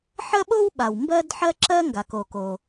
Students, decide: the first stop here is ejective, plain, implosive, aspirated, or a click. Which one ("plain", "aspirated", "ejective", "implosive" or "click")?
implosive